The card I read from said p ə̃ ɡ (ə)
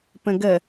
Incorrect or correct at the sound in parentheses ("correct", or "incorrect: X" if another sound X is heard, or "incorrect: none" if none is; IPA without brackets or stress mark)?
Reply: correct